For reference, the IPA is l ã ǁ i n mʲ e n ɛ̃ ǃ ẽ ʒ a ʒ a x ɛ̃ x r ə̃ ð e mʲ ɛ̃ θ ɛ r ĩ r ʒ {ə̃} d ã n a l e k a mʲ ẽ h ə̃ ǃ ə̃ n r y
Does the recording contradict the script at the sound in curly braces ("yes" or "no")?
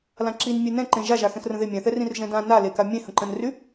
yes